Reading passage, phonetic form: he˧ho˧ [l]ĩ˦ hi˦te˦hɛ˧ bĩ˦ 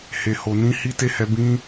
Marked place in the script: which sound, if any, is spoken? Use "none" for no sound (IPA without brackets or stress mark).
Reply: n